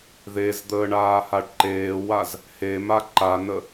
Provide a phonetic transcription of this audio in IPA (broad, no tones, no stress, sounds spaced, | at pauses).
ð e z d̪ əː ɳ aː h a ɖ ǃ eː w a z | h e m a ǃ a n ə